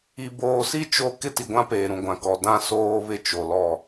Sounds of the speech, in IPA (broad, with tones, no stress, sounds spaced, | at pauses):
i˨ b oː˨ s i˦ t͡ʃ o˦ k ɪ˦ t i˨ ɡʷ ã˦ p eː˨ ɾ ũ˨ ɡʷ ã˨ k ɔ˨ d ã˦ s oː˦ β ɪ˦ t͡ʃ o˨ l ɔ˦˨